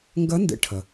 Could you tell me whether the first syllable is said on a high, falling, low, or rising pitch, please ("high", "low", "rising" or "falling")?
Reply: rising